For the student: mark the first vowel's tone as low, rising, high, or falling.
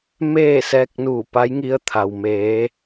falling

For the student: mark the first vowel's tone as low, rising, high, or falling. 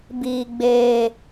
high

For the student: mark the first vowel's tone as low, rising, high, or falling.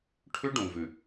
high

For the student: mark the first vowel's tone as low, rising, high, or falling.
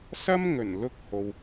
high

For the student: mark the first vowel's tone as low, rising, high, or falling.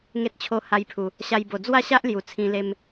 high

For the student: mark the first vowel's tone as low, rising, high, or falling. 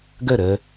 falling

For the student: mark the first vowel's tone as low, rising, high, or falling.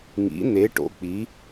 rising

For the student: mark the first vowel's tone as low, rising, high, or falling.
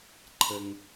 low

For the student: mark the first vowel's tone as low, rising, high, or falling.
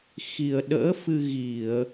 low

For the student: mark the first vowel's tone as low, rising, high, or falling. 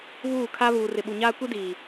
falling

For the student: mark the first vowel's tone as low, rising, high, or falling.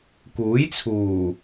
rising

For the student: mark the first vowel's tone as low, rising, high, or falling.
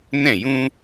falling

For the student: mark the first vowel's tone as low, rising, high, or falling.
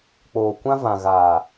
low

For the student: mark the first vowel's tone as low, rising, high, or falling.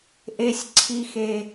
low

